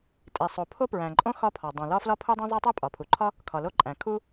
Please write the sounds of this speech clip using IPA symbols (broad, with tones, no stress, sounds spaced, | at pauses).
tʼ i˩ sˤ o˩ pʰ o˥ p ɹ æ̃˩ ǃʼ õ˥ x ɒ˥ pʰ ɒ˩ dˤ õ˩ l ɒ˥ f l ɒ˥ pʰ u˥ dˤ ĩ˥ zˤ i˥ tˤ e˥ pʼ ɒ˩ pʰ u˩ ǃʰ ɒ˥ | kʰ ɒ˩ l o˥ ǃʼ æ̃˩ kʰ u˥